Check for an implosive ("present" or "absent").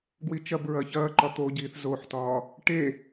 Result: absent